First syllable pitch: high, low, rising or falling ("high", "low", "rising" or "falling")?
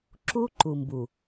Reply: high